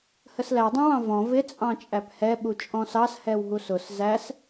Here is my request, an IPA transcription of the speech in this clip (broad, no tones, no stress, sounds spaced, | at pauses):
h ə s l æ dˤ ɛ̃ w ɑ̃ v ɔ̃ v ɪ t͡sʼ ɑ̃ t͡ʃʼ æ p h ɛ ɓ u t͡ʃʼ ɔ̃ s ɑ s h ɛ w ɦ u s ʊ s z æ s